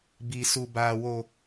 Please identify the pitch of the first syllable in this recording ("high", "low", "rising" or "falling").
low